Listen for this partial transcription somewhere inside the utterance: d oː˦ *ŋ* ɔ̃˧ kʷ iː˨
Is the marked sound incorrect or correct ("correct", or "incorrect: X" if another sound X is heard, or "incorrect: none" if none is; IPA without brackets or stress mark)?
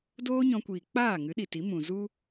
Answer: incorrect: ɲ